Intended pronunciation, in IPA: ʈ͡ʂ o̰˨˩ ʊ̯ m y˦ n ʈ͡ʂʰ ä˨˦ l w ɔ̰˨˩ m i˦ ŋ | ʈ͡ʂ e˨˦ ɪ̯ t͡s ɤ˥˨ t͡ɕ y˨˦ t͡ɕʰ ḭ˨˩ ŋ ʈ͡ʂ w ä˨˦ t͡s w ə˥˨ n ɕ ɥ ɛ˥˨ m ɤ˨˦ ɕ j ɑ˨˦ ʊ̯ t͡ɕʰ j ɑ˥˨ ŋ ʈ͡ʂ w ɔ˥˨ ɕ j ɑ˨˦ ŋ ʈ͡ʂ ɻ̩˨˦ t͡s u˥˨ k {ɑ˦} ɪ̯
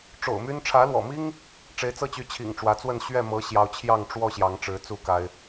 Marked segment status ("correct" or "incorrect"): incorrect